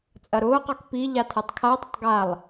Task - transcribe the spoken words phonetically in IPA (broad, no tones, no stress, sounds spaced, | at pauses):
t͡sʼ ɐ ɾ ʊː q ɔ k p i ʎ a tʰ ɛ tˤ kʰ a dˤ ʊ tˤ ɡ a lˠ